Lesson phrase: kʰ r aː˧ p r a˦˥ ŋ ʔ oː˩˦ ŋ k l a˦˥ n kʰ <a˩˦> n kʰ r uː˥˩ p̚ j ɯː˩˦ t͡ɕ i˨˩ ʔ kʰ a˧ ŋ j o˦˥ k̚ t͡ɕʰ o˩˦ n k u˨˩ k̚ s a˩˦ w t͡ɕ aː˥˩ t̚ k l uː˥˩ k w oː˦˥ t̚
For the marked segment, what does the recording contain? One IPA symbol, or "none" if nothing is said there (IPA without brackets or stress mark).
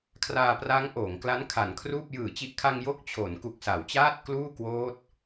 a˩˦